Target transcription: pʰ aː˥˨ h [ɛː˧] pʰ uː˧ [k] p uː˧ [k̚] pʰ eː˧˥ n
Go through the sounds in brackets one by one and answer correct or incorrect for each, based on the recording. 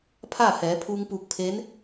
incorrect, incorrect, correct

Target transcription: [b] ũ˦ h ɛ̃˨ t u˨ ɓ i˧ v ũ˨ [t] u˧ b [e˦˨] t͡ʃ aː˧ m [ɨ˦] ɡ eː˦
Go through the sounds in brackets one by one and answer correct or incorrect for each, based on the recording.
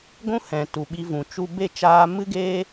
incorrect, incorrect, correct, correct

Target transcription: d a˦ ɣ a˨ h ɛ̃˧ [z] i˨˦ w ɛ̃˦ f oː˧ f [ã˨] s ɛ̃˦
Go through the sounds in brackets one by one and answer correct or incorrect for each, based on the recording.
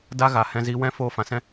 correct, correct

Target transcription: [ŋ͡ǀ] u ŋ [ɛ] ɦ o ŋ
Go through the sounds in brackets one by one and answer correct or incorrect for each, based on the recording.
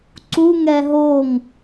incorrect, correct

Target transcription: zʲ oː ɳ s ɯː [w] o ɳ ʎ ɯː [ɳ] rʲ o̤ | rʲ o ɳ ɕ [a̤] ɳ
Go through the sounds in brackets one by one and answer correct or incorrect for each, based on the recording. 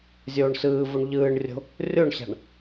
incorrect, correct, correct

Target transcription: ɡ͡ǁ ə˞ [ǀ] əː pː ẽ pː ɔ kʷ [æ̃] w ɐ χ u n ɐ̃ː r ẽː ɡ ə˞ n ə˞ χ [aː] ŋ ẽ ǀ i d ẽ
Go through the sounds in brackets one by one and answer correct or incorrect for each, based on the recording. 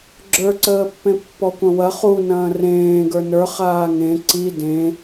correct, incorrect, correct

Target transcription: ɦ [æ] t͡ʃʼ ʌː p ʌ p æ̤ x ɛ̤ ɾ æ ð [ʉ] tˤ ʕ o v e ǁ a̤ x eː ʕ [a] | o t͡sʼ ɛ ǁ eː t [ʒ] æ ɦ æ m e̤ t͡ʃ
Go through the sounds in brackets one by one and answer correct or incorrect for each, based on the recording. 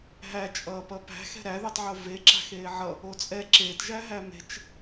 correct, correct, incorrect, correct

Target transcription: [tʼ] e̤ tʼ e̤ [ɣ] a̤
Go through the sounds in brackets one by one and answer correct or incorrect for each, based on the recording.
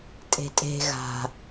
correct, correct

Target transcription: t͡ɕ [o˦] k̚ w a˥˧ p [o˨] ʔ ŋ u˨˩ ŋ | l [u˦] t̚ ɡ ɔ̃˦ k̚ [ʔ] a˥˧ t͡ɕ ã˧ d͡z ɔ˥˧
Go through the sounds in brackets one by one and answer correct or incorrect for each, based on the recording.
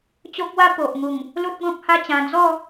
correct, correct, correct, incorrect

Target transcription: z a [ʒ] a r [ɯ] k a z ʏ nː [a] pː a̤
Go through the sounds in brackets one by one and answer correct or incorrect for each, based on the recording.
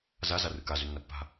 incorrect, correct, incorrect

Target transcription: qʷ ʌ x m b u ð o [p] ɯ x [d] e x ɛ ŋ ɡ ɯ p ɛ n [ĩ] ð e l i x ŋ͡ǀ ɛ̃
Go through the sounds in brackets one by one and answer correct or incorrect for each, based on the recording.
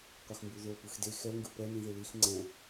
correct, correct, correct

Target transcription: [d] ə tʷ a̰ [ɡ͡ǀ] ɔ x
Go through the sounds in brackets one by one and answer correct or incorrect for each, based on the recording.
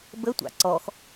incorrect, incorrect

